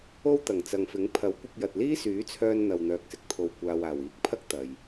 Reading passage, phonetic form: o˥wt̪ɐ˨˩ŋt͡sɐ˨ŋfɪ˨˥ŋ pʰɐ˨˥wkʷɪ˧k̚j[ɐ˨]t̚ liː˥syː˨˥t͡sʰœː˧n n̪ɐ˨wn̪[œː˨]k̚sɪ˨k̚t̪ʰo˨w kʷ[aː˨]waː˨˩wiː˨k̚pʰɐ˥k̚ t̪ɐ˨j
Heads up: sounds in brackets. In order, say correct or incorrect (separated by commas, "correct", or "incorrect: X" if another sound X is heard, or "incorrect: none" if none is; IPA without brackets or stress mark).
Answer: correct, correct, correct